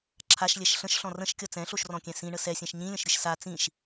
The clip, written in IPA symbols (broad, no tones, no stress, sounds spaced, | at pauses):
ǁʰ a ʃ lʲ ɛ ʃ ɬ ə̃ ʃ ɬ ɔ̃ r ə̃ ʃ kʲ ʌ t͡s ɛ̃ ɬ o ʃ r ɔ̃ kʲ ɛ̃ s ĩ ɳ ə s ɛ sʲ ɛ̃ ʃ ɲ ĩ lʲ ə̃ ʃ ɾʲ ɨ ʃ s a t͡s ĩ ʃ